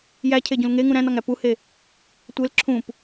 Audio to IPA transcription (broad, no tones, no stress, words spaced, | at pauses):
jæcʰeɟũl ŋeŋũ ɾæ̃nɒŋæ puhe | tʷel ǁʰũp